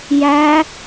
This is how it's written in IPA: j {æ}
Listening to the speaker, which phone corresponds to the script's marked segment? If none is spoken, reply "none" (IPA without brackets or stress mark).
æ